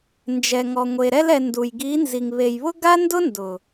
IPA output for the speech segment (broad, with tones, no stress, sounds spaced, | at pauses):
n d͡ʒ ɛ˨ ŋ ɔ˨ ŋʷ e˨ ɾ ɛ˧ l ɛ˨ n d u˨ j ɡ i˨˦ n z i˨ ŋ β e˨ j β ʊ˦ ɡ a˦ n d ʊ˦ n d ʊ˨